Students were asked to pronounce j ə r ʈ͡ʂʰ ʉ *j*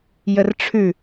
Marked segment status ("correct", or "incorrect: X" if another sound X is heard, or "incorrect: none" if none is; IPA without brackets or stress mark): incorrect: none